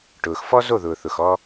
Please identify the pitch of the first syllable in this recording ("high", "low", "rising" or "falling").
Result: low